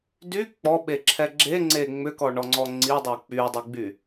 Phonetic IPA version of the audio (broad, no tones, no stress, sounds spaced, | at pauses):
d y k͡p ɔ ɓ e ǁʰ ɛ ɡ͡ǁ e ŋ͡ǀ e ŋ͡m ʏ k ɔ ɳ ɔ ŋ͡ǀ ɔ ŋ͡ǀ i dˤ o k͡p y dˤ i ɡ͡b y